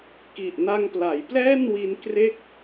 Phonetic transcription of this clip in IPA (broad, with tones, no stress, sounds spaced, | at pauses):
k i˨˩ ʔ n a˧ ŋ p l a˩˦ j p l ɛː˥˩ n w i˧ n k r e˥˩ k̚